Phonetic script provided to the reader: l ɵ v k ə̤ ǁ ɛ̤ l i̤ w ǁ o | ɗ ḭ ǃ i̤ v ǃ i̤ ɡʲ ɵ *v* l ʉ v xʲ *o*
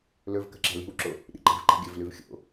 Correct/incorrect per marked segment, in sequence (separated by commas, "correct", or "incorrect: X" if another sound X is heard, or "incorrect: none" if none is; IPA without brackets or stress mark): correct, incorrect: o̰